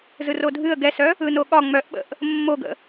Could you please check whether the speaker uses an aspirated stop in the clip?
no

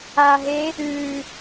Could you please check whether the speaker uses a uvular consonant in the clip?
no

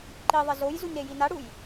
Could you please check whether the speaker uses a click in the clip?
yes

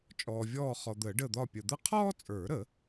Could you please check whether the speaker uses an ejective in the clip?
yes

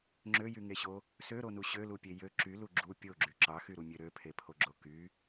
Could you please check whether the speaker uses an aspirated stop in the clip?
yes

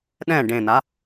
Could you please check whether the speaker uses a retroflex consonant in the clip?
yes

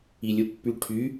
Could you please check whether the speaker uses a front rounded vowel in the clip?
yes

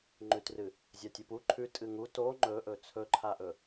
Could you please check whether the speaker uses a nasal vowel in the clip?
no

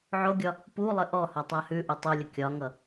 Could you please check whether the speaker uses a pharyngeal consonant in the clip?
yes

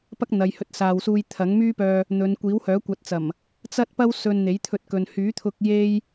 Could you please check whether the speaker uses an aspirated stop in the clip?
yes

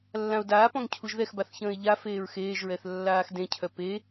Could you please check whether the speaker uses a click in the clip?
no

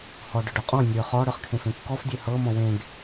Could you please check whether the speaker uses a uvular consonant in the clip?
yes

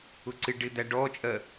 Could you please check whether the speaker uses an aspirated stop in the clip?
no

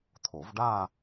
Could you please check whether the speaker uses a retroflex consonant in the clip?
yes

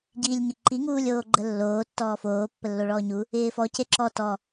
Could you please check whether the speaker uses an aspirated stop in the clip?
no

